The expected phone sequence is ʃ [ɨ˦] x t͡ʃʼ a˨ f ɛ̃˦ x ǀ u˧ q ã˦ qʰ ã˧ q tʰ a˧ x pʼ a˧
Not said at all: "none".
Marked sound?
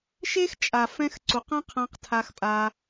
e˦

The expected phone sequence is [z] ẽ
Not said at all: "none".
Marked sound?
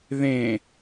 ð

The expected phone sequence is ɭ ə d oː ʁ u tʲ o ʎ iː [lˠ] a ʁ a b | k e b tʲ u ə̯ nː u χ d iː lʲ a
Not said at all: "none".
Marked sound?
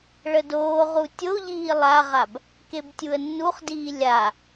lˠ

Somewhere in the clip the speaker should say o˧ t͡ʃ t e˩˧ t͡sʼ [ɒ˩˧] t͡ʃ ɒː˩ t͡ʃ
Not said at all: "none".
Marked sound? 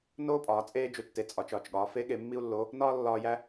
ɒ˩˧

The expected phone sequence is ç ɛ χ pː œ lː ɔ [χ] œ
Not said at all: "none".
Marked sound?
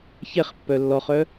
χ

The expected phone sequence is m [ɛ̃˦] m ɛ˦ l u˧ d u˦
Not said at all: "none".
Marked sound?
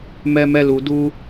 ɛ˦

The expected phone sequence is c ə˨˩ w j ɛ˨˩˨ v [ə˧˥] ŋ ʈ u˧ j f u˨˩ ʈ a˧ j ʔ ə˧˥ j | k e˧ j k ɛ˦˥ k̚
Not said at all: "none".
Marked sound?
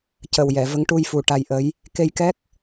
ə˧˥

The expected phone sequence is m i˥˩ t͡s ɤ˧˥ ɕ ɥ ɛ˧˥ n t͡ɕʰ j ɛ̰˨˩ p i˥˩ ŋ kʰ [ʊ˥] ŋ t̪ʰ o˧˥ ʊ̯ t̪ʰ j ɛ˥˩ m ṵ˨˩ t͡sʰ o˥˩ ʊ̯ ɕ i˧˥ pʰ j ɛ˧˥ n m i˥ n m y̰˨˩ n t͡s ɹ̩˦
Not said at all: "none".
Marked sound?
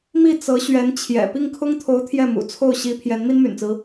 ʊ˥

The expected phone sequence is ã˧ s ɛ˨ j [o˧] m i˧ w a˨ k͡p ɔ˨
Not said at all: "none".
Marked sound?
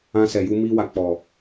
u˧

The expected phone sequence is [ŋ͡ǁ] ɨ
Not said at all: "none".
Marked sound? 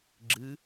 ɡ͡ǁ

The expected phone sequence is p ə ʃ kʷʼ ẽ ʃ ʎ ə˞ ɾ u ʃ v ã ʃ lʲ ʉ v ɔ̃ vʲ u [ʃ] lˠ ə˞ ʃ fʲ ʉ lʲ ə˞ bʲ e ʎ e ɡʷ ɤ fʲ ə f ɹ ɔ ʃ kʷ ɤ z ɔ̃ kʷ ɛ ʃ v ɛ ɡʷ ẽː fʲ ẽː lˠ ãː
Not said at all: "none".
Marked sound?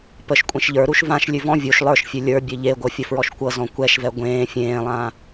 ʃ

